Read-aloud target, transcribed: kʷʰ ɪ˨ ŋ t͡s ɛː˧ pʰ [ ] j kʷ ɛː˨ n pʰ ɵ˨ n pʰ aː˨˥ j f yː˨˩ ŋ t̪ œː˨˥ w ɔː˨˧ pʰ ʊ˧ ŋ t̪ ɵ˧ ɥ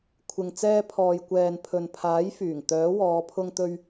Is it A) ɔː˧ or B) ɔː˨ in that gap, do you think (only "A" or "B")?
B